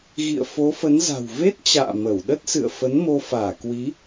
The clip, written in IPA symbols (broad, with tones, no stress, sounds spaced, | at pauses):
ɣ ḭ˧˨ ə̯ f o˨˦ f ə˨˦ n z a̤˨˩ w v e˦˥ t̚ t͡ɕ a̰ː˧˨ m ə˧˩ w ɗ ə˦˥ t̚ s ɨ̰˧˨ ə̯ f ə˨˦ n m o˧ f aː˧˩ k w i˨˦